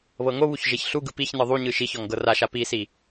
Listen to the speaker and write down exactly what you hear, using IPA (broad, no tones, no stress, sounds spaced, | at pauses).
β ɤ ŋ o β u ç ʒ e ç ɬ u ɡ ɯ p i ç n ɯ ðˤ u ɲ ɯ ʃ i ç ɔ ŋ ɡ ɤ r a ʃ a p i s i